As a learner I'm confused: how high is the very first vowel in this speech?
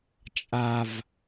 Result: low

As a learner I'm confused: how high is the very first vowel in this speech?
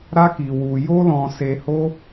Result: low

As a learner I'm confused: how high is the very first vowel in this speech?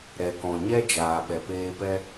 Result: mid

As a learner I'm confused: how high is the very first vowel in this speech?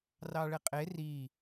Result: low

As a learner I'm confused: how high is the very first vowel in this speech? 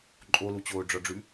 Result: mid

